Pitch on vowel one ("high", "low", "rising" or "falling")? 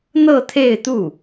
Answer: falling